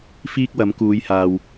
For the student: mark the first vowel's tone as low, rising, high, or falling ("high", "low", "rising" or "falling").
high